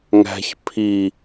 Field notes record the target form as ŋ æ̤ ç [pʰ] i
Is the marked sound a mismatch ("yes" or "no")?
no